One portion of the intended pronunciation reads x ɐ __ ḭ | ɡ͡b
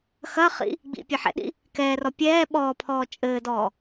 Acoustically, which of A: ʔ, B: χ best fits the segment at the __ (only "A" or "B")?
B